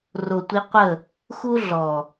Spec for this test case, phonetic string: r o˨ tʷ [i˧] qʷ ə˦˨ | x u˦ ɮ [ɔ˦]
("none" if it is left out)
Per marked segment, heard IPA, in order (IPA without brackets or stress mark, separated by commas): i˧, ɔ˨